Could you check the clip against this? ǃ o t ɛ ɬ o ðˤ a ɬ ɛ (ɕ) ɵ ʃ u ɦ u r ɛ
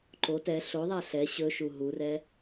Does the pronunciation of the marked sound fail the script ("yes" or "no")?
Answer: no